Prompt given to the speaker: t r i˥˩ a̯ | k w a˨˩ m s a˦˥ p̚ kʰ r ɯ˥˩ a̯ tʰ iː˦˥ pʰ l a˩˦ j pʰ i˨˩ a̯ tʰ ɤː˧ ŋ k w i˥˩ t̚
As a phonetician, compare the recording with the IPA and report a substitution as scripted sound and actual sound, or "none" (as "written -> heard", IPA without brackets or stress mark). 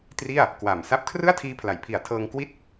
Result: none